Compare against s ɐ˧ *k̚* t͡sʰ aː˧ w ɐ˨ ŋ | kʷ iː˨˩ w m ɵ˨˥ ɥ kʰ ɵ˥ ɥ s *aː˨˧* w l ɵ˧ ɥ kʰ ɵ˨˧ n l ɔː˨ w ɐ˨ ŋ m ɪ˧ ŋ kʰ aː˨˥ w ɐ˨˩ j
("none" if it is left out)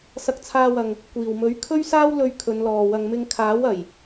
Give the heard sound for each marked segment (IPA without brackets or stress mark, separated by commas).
k̚, aː˥